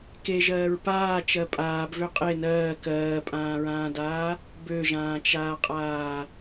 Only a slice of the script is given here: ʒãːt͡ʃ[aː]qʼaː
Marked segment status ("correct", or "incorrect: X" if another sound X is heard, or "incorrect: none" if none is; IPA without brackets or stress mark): correct